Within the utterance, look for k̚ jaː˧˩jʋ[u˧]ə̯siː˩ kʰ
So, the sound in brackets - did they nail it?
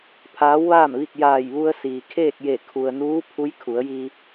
yes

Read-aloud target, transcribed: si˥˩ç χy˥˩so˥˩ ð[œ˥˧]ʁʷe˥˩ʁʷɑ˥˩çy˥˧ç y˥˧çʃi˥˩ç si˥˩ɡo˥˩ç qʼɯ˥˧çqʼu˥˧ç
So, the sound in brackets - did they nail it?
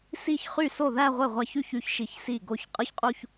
no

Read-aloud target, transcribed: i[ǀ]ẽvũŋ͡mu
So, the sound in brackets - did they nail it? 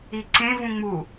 yes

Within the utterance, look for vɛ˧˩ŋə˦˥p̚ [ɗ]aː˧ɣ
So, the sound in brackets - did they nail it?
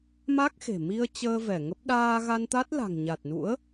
yes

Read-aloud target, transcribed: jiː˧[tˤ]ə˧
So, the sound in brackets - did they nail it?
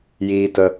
no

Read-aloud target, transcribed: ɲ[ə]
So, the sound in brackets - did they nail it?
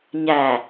no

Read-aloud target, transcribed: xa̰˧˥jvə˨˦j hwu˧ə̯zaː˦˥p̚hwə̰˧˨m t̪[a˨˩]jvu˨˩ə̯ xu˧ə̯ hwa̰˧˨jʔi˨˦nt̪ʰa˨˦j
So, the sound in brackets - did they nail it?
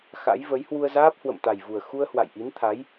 yes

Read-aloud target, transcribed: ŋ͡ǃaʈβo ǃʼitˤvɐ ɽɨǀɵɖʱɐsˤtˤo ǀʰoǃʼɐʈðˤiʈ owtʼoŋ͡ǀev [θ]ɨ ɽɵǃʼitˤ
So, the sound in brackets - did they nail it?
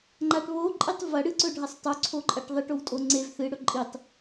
yes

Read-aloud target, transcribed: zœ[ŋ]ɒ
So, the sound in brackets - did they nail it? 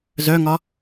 yes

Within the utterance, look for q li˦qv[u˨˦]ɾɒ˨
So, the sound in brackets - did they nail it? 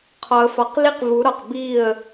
yes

